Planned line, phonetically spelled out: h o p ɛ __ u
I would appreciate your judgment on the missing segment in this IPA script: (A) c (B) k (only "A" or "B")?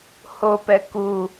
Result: B